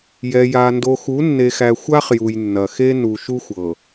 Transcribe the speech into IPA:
jɛ˨ja˨ ndo˨xu˨˦nːe˨xæ˨ xʷa˦χ ju˨jnːɐ˨xe˦ nu˨ʃu˦xʷ ɤ˨

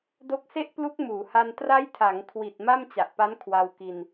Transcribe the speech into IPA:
do˦˥k̚se˥˩ʔ plu˦˥k̚ muː˩˦ha˧n tra˦˥jtʰa˩˦ŋkʰwi˨˩t̚ ma˥˩mt͡ɕa˨˩ʔpa˦˥n kʰwa˧w ki˧n

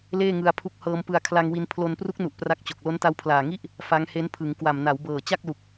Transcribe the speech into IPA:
leː˥˩ŋɯ˧a̯pʰu˦˥k̚ hɤː˧mpɯ˧a̯ kʰla˧ŋwi˧n pʰlo˧npru˦˥k̚nu˨˩ʔ pra˥˩k̚t͡ɕo˨˩k̚ lo˦˥nta˦˥wpʰlaː˨˩ŋi˥˩ʔ | fa˦˥ŋhe˦˥n pʰɯ˩˦ŋkwa˨˩m na˩˦wbɤː˨˩ t͡ɕa˥˩k̚lu˨˩k̚

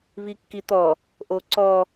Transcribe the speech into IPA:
βikːit̪ɔ | ʔoǀɔ

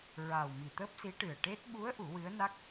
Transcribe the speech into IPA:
ɹa˨˩w mi˨˩t̪əː˦˥p̚si˧˥ʈɨ˨˩ə̯ ʈe˦˥t̚ ɓu˧˥ə̯ ʔu˨˩˦wɨ˧˥ə̯na˦˥k̚

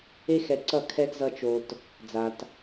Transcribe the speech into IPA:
e˦xɛ˧ǀʌ˦˨ kʰɛ˧ɡzʌ˧t͡ʃo˧t | d͡za˧t

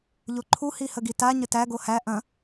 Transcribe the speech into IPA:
ʎoǃʰu hihəɡita ɲətæ ɡohæ ʔɐ̃

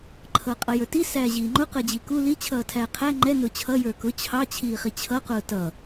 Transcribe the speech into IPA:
ǃʰʌːqʼʌjə˞ti sæːʑiːŋ͡ǃʊ qəːd͡ʑiku li t͡ɕʰʌːtʰæːqʰæ ŋ͡ǃɛ nʊːt͡ɕʰʌ jə˞kʊ t͡ɕʰɑ t͡ɕʰiːχit͡ɕʰʌ qʊːtʌ

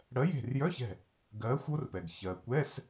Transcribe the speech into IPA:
ɽɜ˨˥je̤˧˩rjœ˧˥˧çɛ̤˧˩ | ɡɜː˨˥xʷ o˦˥rpɛ˩ɡ çɜ˩kʷɛ˧˥˧s

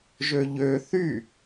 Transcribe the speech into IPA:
ʒøʎø θy

